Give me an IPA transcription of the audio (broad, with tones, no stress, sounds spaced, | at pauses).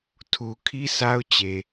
tʰ u˨ kʰ i˦ sʰ a˦ ʊ̯ t͡ɕ e˨